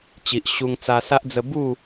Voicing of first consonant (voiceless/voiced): voiceless